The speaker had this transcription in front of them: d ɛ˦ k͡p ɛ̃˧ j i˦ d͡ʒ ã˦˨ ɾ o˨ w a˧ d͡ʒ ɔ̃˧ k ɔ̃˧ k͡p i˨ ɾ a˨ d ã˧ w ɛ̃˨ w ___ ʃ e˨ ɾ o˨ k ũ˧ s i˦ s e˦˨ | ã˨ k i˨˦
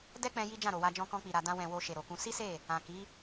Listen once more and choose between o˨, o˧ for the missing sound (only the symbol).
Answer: o˧